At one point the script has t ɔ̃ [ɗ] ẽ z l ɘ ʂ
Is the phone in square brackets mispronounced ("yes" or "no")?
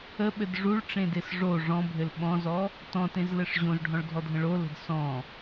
yes